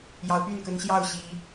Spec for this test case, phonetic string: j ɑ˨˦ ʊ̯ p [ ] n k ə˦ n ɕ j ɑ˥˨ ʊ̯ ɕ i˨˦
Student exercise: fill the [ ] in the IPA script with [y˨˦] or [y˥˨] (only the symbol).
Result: y˥˨